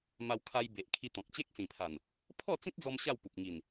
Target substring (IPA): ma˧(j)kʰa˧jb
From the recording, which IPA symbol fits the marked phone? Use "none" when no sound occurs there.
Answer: w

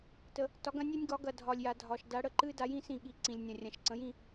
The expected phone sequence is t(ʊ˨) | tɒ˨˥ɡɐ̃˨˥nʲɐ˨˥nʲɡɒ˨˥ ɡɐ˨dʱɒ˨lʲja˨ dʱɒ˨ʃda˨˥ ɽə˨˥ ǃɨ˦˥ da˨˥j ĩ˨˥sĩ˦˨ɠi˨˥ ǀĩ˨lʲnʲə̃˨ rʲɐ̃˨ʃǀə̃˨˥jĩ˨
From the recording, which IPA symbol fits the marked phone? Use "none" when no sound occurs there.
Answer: ə˨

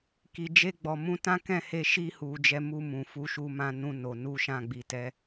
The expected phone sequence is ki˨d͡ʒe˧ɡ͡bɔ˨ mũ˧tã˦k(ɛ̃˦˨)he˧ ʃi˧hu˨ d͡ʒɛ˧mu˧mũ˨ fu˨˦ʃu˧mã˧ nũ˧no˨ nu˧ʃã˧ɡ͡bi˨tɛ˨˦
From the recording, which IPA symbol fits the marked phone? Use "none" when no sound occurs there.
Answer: ɛ̃˦˨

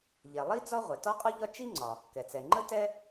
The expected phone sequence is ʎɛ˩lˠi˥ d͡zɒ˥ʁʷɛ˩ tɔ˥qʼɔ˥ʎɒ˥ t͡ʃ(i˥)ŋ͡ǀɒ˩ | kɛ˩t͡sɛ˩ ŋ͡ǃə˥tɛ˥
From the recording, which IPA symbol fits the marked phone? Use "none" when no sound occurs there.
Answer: i˥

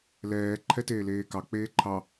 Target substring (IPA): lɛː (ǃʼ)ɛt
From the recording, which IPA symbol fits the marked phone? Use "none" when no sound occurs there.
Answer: ǃʰ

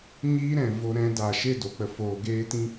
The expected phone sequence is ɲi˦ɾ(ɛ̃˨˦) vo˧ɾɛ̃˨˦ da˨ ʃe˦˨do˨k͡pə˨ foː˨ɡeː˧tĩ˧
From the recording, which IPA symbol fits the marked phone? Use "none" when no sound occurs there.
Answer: ɛ̃˨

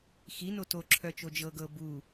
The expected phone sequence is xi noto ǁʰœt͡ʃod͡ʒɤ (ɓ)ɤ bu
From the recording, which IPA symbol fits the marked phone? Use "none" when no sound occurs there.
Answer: ɡ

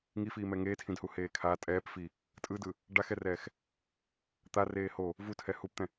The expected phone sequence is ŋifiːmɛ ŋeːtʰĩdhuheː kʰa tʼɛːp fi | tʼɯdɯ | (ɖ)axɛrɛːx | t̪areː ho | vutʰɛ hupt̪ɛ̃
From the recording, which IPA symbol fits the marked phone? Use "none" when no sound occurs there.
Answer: ɖ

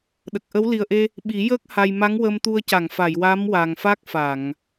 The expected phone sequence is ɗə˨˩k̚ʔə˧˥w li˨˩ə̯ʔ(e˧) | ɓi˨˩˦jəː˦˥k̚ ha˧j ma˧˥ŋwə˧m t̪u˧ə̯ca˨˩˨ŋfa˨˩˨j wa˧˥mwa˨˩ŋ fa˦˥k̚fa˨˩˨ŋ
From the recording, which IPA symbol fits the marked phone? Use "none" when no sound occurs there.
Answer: e˧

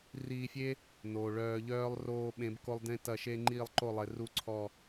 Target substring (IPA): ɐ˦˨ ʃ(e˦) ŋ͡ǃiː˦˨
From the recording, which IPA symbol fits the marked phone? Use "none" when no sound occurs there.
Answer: e˦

